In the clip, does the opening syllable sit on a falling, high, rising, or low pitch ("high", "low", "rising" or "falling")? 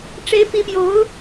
rising